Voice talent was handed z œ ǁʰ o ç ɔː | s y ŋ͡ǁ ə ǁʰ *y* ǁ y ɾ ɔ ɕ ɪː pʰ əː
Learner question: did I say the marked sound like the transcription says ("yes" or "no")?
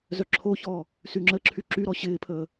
yes